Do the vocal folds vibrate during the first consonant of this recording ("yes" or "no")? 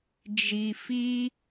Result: yes